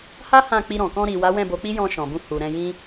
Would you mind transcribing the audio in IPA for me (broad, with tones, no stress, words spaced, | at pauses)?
ha˦ hã˦˨k͡pi˧ɾɔ̃˨ kɔ̃˧ɾi˨wa˨˦ wɛ̃˦˨bo˨˦k͡pi˦jɔ̃˧ ʃɔ̃˨bũ˧ hu˨ɾɛ̃˧ jĩ˦